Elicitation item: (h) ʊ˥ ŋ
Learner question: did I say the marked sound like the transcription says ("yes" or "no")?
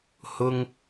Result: yes